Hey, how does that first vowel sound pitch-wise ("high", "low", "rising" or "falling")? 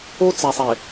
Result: high